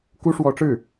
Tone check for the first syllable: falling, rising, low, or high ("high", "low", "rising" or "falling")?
high